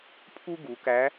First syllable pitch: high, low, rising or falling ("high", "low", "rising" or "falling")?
high